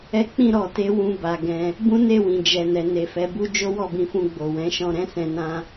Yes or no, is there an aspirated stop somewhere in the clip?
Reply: no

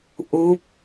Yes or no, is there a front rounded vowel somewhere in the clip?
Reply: no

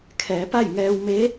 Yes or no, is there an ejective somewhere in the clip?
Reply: no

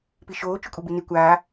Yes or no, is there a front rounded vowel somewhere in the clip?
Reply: yes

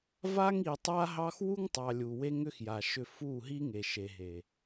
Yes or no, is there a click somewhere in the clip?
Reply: no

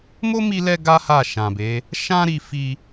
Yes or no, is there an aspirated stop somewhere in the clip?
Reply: no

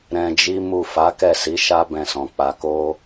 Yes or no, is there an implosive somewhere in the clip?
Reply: no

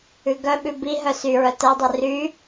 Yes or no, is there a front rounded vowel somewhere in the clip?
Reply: yes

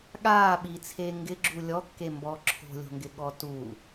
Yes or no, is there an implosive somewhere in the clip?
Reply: yes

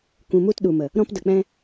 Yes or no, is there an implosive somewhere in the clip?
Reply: yes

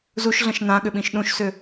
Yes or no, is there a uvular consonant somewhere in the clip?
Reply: no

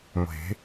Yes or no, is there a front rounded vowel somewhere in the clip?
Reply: no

